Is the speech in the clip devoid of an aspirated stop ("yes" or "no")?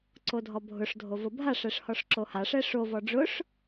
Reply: yes